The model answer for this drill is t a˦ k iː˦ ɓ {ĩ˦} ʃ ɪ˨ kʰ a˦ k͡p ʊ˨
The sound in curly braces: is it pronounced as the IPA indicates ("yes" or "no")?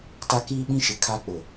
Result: yes